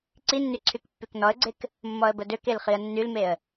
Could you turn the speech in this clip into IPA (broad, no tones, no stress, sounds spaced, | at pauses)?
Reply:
ǀ i nː y ǀʰ y k pː y k n ɔ ə̯ ɡ͡ǀ e k | mː ɔ ə̯ b ə d ø k e l χ i ə̯ nː y l m e ə̯